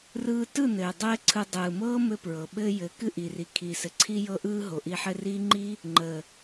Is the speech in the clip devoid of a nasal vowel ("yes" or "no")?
yes